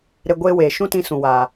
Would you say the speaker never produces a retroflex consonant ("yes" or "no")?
yes